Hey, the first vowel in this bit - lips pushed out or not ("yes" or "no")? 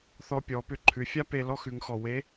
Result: yes